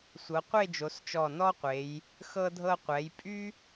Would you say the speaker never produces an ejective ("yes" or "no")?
no